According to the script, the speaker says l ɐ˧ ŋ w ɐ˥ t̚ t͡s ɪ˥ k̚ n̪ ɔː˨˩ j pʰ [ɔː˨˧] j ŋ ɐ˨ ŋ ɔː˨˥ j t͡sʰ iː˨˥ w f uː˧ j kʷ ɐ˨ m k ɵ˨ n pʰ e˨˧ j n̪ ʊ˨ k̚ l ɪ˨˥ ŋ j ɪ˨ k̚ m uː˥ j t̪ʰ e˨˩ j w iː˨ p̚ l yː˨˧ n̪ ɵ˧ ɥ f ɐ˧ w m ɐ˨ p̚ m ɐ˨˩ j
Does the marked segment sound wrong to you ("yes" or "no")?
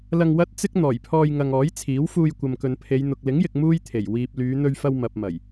yes